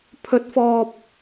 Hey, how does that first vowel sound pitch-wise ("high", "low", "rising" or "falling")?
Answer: rising